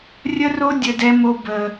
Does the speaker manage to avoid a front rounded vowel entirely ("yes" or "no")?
yes